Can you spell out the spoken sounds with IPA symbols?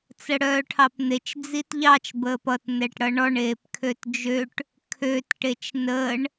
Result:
t͡səɽœːʈʰɑpn̪et͡ʃ d͡zitʎɑt͡ʃ bəːpʌt nɛʈɽʌɳɔɳ eːpkʰøtd͡ʒøʈ | kʰøt ʈet͡ʃnəːɳ

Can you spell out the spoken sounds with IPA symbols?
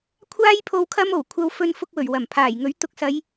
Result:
kʷʰaː˥jpʰo˧w kʰɐ˥mo˨˩wkʷʰɐ˧w fɵ˧nfʊ˧k̚wɵ˨˩ɥ wɐ˨˩mpʰaː˨˩jŋɵ˨˥ɥ t̪ʊ˨k̚sɐ˨˧j

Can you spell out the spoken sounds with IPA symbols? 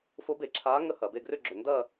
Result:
fo˧˥be˧˩˧ǁʰaː˧˥ ŋə˥˧hɐ˧˩˧be˥˧ ɡrʏ˥˧ɡ͡ǁʏ˧˩˧ ndɐ˥˧

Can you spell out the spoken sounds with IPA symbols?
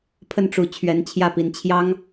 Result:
pʰə˥˩nʈ͡ʂu˧˥ t͡ɕʰɥɛ˧˥nt͡ɕʰjä˥˩pi˧˥n t͡ɕʰjɑ˥ŋ

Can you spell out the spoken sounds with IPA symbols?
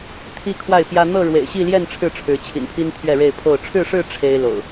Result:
t̪ʰi˦ kʰwa˥˨ɪ̯pjä˦ n̪ɤ˥˨ɻwḛ˨˩ɪ̯ɕi˥˨ljɛ˥˨n ʈ͡ʂʰɻ̩˥˨ʈ͡ʂʰɻ̩˨˦t͡ɕʰḭ˨˩npʰi˦n t̪ʰɥɛ˥˨ɻe˥˨ɪ̯pʰo˥˨ʊ̯ ʈ͡ʂʰɻ̩˥˨ʂɻ̩˥˨ ʈ͡ʂʰe˦ɪ̯lo̰˨˩ʊ̯

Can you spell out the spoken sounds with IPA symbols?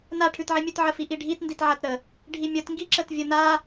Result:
naʈʰʉtʕimʲʉt ʕəfiʔiɖʱit nditʕatɾə | ɖʱimʲətŋɡiǁət vʲəna

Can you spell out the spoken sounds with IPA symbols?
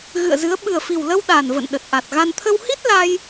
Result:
ɣɨ̰˧˨ə̯zɨ˨˦ə̯ ɓɨ˨˩ə̯fi˨˩wlə˧w ɗa˨˩n və̰˧˨nɗə˨˩t̚ ʔa˨˩t̚ɣa˧n t̪ʰə˧whi˦˥t̚ la˧j

